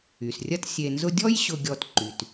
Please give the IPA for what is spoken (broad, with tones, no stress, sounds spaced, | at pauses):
y˩ s rʲ ɐ˦ t sʲ e˨ n z ʊ˦ dʲ ɔ˥ j ɕ ʊ˨ ɡʲ ɔ˨ t ǃ y˩ t